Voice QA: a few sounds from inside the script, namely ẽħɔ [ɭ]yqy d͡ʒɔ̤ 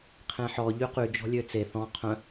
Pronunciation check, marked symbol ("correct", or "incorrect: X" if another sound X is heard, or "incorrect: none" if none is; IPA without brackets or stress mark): incorrect: ʎ